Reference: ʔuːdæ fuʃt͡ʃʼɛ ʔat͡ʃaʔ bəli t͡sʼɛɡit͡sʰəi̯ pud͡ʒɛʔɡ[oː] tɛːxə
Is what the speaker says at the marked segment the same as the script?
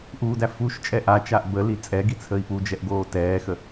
yes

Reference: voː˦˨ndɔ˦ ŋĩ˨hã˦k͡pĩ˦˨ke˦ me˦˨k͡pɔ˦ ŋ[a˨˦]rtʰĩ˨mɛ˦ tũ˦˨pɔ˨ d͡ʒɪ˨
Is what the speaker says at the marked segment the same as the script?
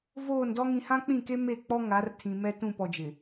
yes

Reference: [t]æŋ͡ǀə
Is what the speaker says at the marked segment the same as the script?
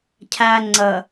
no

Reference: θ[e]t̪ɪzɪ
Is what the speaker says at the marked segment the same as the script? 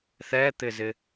no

